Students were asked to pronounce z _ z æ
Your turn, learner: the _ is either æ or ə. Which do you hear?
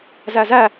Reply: æ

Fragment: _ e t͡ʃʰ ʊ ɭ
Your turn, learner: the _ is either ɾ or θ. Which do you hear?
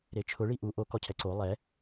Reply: ɾ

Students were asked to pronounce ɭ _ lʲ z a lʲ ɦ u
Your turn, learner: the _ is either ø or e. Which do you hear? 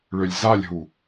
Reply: ø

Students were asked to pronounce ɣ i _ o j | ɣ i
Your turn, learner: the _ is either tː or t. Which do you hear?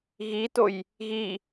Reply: t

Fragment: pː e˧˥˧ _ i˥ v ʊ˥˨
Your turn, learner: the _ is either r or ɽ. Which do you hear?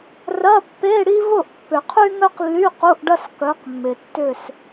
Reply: ɽ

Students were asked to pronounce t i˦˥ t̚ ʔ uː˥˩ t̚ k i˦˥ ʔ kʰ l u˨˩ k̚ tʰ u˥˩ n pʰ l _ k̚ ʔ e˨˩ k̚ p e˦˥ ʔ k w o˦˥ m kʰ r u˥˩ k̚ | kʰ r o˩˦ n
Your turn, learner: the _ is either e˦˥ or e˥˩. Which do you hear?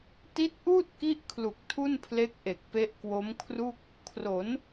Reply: e˦˥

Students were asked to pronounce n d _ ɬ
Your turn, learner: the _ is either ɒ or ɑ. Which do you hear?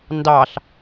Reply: ɑ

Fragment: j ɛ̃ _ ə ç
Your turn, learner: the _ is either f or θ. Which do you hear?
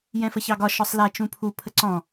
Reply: f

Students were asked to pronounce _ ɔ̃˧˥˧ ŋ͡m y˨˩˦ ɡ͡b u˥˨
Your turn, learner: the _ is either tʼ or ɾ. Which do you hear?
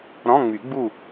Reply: ɾ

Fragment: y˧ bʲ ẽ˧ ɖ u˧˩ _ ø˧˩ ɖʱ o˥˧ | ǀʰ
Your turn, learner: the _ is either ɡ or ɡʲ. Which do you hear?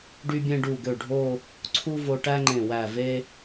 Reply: ɡ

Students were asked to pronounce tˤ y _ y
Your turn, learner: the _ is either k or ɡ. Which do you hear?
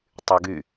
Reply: ɡ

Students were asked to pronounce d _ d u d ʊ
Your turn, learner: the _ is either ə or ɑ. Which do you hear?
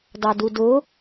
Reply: ɑ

